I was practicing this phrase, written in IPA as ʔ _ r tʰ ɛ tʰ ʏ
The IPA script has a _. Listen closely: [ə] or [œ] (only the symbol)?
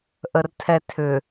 ə